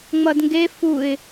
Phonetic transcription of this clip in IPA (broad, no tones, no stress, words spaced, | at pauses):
ŋ͡mʌdŋɡe fuɪ̯